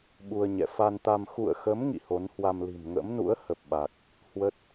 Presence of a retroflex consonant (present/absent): absent